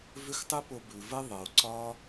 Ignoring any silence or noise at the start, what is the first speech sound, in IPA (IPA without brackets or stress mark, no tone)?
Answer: v